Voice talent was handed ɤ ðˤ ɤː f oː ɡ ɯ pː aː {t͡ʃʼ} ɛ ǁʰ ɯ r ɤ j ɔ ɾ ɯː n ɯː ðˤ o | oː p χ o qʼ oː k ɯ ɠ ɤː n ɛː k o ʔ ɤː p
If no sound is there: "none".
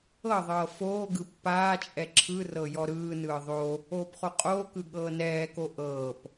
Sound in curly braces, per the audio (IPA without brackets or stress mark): t͡ʃʼ